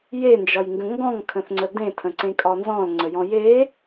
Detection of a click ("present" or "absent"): present